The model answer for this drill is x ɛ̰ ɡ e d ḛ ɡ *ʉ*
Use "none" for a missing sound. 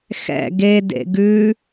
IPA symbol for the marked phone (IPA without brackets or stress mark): ʉ